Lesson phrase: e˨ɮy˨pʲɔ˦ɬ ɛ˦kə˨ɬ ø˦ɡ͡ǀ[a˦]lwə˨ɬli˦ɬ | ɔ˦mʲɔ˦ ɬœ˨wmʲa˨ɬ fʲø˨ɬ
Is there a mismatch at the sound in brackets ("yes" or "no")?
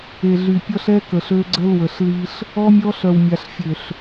yes